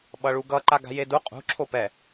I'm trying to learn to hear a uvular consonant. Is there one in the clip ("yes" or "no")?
yes